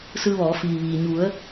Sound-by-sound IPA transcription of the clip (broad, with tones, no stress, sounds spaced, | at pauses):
s ɯː˧ ʋ ɔː˩˧ f iː˩ ʋ iː˩ ɲ u˩˧ ə̯